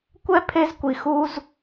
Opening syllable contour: high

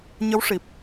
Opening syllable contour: rising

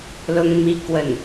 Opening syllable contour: high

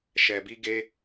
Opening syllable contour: low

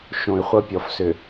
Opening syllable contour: low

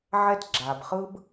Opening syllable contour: high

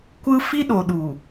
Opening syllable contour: high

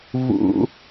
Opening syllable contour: high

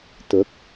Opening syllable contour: rising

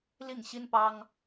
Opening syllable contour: falling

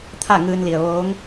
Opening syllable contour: falling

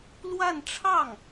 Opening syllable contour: falling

